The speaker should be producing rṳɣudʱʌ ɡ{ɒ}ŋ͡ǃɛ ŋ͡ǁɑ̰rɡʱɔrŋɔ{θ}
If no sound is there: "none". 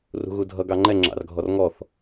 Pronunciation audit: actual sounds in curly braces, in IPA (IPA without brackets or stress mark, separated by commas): ɑ, θ